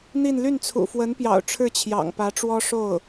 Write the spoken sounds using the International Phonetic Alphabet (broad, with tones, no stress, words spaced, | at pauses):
n̪i˥˧n ly˥˩nt͡sʰṵ˨˩ fwə˧˥npjɑ̰˨˩ʊ̯ ʈ͡ʂʰɻ̩˥˩t͡ɕʰjɑ̰˨˩ŋpä˧˥ʈ͡ʂwɔ˥ ʂo˥˩ʊ̯